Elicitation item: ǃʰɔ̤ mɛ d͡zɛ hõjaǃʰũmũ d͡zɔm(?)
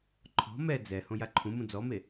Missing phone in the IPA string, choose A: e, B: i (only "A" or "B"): A